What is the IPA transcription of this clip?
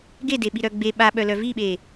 ɡedeɓiɾœ ɡ͡be ɓaɓœlœ viɓe

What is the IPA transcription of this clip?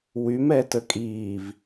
wymɛtə kʼiːv

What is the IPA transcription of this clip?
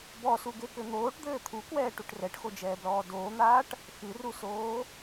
bɔsuɡekɘ n̪oːʈd̪ɘː t̪ʰukwɛːʈuʈ rɛʈxod͡ʒɛːblɔː doːn̪aːʈ | xɨrusoː

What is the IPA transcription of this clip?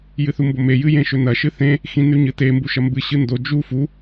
jɨθumbome jɨjẽʃɵnɐ ʃɨθẽ | xĩnʉɲɨte mbuʃɐmbɨ ɕɨndo d͡ʒu fu

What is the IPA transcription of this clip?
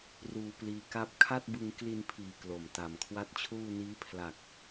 ruː˧pliː˧ka˥˩p̚ kʰa˥˩t̚bɯ˧ŋ kli˧npʰiː˩˦ klo˨˩mta˨˩mkʰwa˥˩t̚t͡ɕʰuː˥˩ niː˦˥pʰla˨˩k̚

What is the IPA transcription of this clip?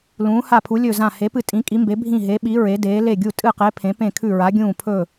lũː˩˧ha˧˩pʰu˩˧ lʲɵ˧˩zã˧˩ he˩˧pɨ˧˩ tʼĩ˩˧kʼi˩˧mbe˩˧ bʱĩ˧˩ɦe˩˧ɓi˩˧ ɹe˩˧deː˩˧ le˧˩ɡʲu˧˩ tʼɨ˧˩qe˩˧ pʰẽ˩˧pẽ˧˩kʰʉ˧˩ɹa˩˧ ɡʲũː˧˩ pʰɵ˧˩

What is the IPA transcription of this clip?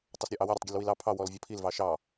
tˤɐsɾʲɔʔɑwɐ ɾʲɑtˤɡʲəlwilɑ pʰɑ wɔlvʲɔpʰil vɑʃɑ

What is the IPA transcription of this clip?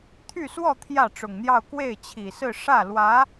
t̪ʰy˥˧swɔ˥˧ t̪ʰjä˥˩ʈ͡ʂʊ˨˩ŋn̪jɑ˥˧ʊ̯ kwe˥˩ɪ̯t͡ɕʰi˨˩sɹ̩˥˧ ʂä˥˩lwä˧˥

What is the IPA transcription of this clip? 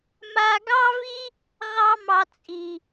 ma˧ɡɑ˦vi˦ | ʁɑ˦mɑ˧t͡sʼi˨

